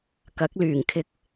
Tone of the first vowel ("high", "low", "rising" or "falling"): rising